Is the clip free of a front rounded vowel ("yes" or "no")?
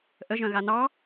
no